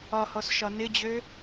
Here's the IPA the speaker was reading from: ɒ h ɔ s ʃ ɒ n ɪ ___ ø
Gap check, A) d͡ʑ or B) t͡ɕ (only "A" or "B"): A